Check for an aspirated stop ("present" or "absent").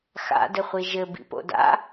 absent